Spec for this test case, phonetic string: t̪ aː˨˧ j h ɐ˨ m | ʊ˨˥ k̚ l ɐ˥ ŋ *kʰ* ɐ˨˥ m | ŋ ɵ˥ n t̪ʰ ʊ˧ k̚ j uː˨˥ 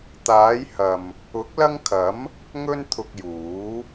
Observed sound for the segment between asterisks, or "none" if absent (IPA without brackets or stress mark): kʰ